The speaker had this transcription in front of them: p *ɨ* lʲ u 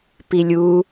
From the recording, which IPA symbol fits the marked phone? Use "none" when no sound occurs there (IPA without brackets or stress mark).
i